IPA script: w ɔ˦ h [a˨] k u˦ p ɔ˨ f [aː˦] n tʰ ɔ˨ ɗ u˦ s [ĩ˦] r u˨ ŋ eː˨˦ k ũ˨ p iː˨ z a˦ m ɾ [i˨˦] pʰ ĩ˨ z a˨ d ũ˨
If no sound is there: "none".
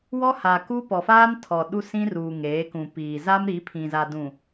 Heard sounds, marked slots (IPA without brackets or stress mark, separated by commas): a˨, aː˦, ĩ˦, i˨˦